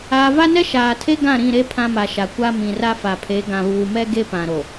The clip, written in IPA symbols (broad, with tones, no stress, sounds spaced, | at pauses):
aː˨ v a˦ n ɛ˦ ʃ aː˨ tʰ e˦ ɡ ã˦˨ ɾ ĩ˦˨ ɾ e˦ pʰ ã˦ m a˨ ʃ a˨ kʷ a˦ m ĩ˨ r a˦ f a˨ pʰ e˨˦ ɡ ã˨ β uː˨ m ɛ˦ ɡ e˦ p ã˨ ɾ o˨